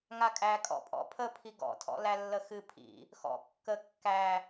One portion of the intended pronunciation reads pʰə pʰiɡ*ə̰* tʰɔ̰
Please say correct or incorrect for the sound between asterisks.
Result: incorrect